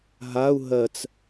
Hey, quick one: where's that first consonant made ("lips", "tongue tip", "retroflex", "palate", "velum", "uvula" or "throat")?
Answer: throat